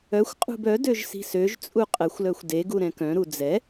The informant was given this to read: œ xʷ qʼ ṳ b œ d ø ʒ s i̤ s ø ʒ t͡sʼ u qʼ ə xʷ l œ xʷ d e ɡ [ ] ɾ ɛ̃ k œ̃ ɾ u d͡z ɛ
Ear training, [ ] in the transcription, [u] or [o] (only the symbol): u